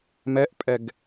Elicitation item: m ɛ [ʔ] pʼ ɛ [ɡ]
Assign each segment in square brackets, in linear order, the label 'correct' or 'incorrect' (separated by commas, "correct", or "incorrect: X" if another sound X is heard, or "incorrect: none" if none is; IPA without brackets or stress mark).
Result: correct, correct